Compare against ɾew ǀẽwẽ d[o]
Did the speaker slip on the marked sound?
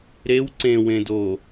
no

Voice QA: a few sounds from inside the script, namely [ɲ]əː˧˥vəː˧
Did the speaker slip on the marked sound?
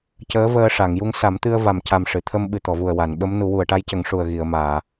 yes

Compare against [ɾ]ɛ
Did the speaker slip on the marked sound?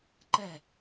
yes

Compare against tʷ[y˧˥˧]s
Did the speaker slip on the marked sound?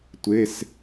yes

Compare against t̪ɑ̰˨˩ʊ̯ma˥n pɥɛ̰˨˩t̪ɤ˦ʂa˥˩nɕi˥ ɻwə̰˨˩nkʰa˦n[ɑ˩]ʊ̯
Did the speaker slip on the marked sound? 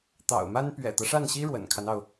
no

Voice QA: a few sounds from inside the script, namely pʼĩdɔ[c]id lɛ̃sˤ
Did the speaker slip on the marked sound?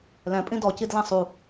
no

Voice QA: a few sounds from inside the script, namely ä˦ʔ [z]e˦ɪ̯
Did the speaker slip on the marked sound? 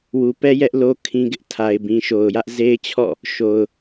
no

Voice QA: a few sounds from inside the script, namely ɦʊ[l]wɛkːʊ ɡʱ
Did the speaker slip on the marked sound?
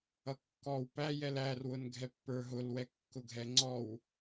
no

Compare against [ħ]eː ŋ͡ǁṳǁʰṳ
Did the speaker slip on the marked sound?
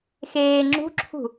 yes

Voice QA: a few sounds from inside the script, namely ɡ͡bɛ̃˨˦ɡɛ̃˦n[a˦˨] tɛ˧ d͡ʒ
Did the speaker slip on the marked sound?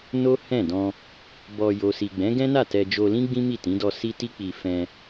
no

